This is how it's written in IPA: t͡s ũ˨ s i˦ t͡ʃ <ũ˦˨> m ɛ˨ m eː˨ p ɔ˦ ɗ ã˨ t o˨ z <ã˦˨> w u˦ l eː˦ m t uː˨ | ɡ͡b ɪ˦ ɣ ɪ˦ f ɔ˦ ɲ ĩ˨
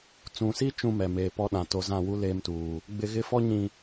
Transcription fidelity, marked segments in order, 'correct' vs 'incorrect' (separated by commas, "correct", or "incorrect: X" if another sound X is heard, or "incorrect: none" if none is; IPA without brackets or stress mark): incorrect: ũ˦, correct